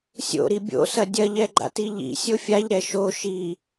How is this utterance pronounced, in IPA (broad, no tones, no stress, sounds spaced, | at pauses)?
sʲ o̰ ɾ i bʲ o̰ s ɐ dʲ ɐ ʎ ɛ ɡ͡ǃ a̰ t i ʎ ḭ sʲ o fʲ a ʎ ɾ ɛ ʃ o ʃ i